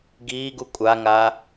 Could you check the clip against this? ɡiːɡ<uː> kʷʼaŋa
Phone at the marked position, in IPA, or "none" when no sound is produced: u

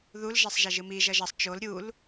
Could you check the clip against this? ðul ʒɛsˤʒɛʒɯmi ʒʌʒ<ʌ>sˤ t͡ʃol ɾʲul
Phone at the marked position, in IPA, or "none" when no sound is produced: ʌ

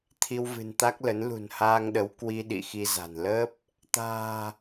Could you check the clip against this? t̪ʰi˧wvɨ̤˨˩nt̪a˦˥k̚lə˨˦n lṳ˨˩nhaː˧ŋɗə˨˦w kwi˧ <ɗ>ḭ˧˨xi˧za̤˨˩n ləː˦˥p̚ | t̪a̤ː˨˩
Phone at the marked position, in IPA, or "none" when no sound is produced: ɗ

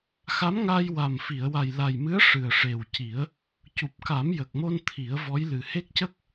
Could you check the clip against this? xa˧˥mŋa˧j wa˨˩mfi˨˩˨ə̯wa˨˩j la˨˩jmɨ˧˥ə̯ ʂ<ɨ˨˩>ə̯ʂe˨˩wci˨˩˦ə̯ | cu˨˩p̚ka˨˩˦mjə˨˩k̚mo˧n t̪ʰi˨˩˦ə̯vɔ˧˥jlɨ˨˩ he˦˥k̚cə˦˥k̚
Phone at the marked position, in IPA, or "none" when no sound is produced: ɨ˨˩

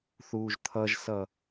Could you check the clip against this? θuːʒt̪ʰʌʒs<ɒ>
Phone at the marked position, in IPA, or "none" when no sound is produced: ʌ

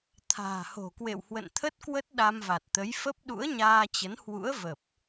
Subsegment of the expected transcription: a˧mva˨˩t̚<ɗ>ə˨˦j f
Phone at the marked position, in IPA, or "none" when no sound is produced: t̪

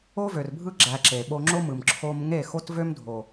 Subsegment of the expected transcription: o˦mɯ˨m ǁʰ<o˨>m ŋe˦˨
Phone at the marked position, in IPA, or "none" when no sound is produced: o˦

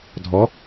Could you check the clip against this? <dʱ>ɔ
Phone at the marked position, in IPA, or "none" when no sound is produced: dʱ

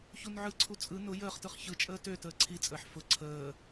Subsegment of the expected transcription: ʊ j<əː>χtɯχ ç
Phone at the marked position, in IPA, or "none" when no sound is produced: əː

